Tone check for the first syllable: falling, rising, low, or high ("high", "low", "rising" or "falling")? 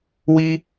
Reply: high